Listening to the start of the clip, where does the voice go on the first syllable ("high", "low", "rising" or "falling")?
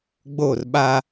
falling